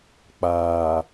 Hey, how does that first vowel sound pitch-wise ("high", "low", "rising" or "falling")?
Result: low